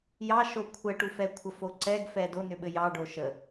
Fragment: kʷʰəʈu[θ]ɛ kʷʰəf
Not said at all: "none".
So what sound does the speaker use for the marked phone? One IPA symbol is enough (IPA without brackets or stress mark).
f